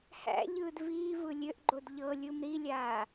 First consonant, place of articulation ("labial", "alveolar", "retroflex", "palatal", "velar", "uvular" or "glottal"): glottal